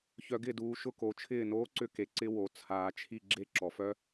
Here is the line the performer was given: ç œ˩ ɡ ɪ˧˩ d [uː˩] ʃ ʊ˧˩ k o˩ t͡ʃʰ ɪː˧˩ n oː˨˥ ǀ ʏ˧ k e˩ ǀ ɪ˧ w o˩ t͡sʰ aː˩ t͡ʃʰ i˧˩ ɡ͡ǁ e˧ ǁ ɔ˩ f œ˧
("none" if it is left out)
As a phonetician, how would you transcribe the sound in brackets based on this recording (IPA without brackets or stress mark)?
uː˩